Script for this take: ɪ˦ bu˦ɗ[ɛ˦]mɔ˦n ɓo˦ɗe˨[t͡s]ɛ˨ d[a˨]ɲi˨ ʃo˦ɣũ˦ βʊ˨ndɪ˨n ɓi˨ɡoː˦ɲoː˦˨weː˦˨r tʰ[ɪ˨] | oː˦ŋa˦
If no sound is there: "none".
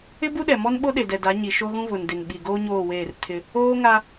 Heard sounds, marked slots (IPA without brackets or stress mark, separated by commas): ɛ˨, d, a˨˦, ɪ˦